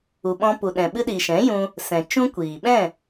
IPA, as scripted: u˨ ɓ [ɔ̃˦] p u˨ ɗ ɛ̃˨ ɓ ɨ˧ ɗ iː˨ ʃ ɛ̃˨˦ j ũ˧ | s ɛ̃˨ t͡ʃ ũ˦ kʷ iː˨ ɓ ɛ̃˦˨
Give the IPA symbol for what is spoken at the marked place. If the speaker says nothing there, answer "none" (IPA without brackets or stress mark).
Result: ɔ̃˧